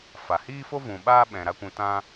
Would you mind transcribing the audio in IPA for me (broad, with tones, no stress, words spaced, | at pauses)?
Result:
fa˨hiː˦fo˦ vũ˨ɓaː˦ ɓɛ̃˨ ɾa˦kʷũ˧ tã˧